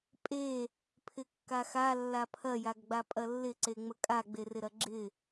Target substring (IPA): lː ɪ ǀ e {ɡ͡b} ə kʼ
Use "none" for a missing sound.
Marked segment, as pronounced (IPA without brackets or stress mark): ŋ͡m